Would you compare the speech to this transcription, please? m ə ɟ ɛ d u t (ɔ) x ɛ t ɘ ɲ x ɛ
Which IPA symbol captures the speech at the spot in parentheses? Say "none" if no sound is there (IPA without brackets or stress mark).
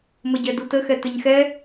ə